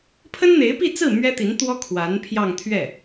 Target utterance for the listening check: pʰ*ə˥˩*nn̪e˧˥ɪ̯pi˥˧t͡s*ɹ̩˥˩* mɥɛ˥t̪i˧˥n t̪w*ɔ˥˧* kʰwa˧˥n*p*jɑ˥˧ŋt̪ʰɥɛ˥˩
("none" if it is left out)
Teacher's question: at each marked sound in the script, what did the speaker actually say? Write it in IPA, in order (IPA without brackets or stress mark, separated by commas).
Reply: ə˥, ɹ̩˥˩, ɔ˥, pʰ